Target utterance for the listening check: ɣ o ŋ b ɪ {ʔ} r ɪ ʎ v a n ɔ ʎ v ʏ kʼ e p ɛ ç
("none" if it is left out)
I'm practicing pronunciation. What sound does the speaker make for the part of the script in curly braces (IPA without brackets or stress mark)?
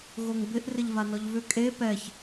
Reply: ʔ